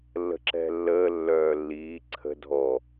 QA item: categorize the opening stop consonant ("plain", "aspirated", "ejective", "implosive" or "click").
click